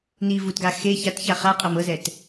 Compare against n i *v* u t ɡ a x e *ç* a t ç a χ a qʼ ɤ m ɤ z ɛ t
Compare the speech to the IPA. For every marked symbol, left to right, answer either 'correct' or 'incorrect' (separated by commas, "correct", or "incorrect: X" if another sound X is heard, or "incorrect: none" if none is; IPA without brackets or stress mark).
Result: correct, correct